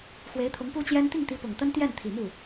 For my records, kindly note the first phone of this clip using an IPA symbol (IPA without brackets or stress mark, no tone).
x